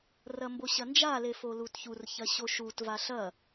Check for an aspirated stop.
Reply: absent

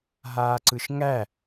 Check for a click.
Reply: present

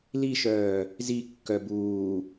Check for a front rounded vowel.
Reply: present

